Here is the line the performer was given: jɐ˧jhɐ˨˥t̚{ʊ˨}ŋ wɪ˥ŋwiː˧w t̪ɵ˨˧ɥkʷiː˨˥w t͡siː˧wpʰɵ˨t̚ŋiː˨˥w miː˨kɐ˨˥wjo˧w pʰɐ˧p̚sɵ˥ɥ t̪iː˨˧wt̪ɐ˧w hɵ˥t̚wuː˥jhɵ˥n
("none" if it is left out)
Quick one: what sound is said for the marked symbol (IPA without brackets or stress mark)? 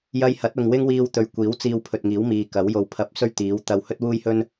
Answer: ʊ˨